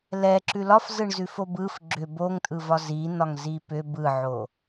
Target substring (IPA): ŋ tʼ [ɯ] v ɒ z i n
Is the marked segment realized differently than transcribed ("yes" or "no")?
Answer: no